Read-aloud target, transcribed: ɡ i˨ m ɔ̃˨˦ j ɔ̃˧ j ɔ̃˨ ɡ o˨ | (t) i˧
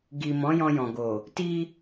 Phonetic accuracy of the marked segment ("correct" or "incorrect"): correct